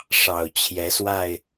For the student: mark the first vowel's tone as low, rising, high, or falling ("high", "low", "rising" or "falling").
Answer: low